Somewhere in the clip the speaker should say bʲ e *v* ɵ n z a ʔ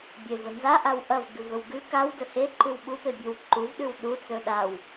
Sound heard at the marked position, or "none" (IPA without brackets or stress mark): v